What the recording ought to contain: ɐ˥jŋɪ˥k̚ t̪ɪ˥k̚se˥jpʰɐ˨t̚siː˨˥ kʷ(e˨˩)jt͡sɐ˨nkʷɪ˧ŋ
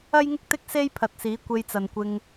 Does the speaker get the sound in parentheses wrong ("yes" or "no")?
yes